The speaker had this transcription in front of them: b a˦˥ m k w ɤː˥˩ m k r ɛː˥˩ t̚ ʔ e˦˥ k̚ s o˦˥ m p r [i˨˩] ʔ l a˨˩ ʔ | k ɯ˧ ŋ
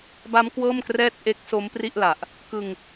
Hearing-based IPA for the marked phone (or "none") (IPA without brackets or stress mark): i˥˩